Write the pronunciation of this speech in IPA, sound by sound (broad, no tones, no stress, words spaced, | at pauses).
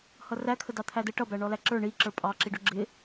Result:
hʌrækʰə dɑt̪ʰædə ʈʌbæ ɳɔlæǁə˞ ɳi ǁə˞pʼɑǁiɖʊ ɡ͡ǁɪ